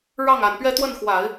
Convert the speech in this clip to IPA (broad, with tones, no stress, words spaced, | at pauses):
ɻɑ˥˩ŋ a˨˩npɥɛ˥˧t̪wə˥˩nxwa˨˩˦ɪ̯